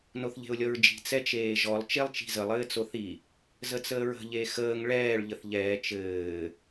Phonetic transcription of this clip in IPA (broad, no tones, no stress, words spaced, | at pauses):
noθʎe̤ʊ̯lʲɔɹd͡ʒi̤ t͡sɛt͡ʃeːʒɔlˠ t͡ʃelˠt͡ʃi̤zəlˠ ɘːt͡soθi | zət͡səːɹə̤ ʎexəːŋ ɭɛːɭ ʎəθʎɛː t͡ʃɘː